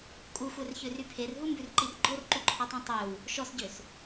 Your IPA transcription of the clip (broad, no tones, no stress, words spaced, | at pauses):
kʼuxʷɛrçøry pʰerɦumbʉrǃir ɡ͡ǃorǃuǃʰɔtˤĩ tˤøw | ʃɔsɟøs